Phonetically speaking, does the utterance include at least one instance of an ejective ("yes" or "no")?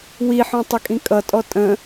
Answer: yes